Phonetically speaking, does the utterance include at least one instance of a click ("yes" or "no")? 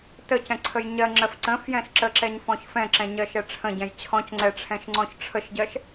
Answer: yes